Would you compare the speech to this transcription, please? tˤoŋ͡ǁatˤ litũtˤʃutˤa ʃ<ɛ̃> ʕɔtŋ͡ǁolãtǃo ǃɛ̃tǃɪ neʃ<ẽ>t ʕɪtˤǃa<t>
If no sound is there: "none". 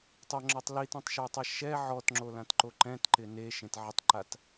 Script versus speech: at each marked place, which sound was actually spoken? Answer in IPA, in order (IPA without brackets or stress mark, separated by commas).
ɛ, ẽ, t